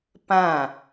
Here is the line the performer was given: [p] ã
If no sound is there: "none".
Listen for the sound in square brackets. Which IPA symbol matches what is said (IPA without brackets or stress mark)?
p